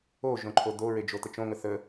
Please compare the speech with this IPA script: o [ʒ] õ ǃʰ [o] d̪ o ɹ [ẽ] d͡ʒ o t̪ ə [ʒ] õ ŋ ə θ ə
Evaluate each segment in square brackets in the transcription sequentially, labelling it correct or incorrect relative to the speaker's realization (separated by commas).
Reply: correct, correct, incorrect, incorrect